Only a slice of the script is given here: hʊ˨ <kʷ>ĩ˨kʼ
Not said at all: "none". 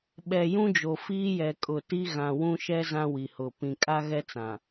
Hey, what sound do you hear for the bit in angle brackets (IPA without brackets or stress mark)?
p